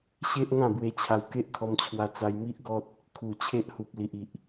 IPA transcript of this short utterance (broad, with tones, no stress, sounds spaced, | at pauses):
ɕ e˦ ʔ ŋ ã˥˧ b w e˧ t͡ɕʰ a˧ w k e˦ ʔ kʰ ɔ˧ m t͡ɕʰ w a˧ t͡s a˧ j m i˦ ʔ ɡ ɔ˦ t̚ | kʰ u˨˩ t͡ɕʰ e˦ ʔ h u˨ p̚ l i˨ ʔ i˨ ʔ